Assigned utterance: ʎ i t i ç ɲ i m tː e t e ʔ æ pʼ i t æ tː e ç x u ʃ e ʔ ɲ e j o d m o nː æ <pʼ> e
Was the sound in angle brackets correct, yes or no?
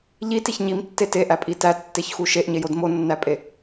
yes